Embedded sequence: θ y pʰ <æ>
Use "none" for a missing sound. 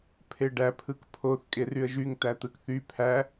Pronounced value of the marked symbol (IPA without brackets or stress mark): æ